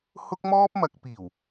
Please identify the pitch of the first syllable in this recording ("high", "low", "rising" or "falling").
high